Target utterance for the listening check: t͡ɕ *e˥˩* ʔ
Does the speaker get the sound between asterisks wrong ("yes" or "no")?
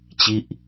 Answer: yes